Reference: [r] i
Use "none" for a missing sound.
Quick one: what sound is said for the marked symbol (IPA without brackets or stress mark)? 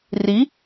r